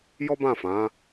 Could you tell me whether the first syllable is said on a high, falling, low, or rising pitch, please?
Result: high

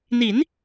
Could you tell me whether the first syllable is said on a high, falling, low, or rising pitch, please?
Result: rising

